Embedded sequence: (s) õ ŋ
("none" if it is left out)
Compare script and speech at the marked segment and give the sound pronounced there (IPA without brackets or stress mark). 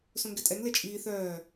s